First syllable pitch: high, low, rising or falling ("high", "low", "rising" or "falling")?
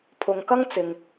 low